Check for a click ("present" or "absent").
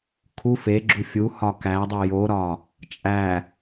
present